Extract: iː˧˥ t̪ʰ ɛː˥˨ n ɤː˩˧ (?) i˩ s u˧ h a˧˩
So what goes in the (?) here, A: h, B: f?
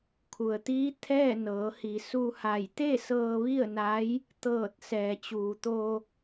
A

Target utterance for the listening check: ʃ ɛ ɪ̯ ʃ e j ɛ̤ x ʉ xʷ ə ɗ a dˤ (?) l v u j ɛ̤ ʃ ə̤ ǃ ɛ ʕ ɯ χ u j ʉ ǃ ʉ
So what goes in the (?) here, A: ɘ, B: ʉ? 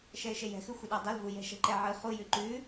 A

